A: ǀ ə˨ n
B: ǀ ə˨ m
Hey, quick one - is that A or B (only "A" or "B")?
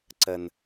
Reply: A